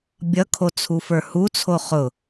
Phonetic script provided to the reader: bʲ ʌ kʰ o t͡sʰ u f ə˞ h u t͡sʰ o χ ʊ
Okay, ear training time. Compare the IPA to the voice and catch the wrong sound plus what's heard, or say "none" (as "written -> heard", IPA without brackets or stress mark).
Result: none